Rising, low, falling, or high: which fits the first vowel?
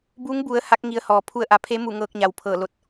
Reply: rising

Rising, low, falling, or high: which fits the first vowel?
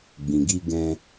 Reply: low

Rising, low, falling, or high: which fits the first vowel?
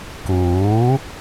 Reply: rising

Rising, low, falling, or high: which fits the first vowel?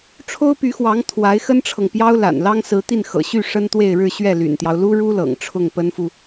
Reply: high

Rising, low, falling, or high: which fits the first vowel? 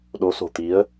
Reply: rising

